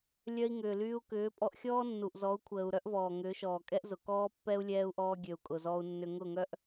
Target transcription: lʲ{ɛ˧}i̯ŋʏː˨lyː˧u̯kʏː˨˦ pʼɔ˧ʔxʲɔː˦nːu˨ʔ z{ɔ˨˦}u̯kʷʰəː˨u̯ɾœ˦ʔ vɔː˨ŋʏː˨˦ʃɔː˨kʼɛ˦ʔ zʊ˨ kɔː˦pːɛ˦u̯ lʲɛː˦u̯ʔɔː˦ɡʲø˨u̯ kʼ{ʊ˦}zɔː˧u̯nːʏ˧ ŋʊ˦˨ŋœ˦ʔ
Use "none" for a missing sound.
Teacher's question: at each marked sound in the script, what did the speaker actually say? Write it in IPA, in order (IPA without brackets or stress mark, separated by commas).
œ˧, ɔ˨˦, ʊ˨